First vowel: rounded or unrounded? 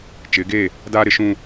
unrounded